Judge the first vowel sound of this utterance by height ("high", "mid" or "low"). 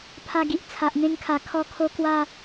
low